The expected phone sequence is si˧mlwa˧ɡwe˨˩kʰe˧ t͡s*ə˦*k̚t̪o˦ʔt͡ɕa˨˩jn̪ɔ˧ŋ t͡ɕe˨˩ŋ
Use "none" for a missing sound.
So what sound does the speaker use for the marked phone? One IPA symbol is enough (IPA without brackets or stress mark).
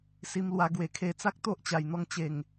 a˦